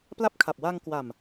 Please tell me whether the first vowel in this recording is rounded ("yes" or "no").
no